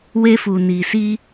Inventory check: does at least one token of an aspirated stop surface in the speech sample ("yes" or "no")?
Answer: no